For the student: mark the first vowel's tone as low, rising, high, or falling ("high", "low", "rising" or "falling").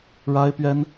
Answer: high